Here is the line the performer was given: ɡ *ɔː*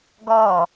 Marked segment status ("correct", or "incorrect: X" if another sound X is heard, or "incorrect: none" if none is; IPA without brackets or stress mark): correct